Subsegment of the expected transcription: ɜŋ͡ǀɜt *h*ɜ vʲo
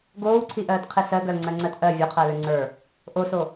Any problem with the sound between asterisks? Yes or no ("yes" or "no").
yes